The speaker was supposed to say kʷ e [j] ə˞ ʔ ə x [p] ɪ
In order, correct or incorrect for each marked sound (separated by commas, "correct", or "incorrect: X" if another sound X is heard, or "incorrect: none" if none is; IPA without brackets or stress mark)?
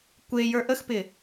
correct, correct